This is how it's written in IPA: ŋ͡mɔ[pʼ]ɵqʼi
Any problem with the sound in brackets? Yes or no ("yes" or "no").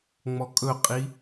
yes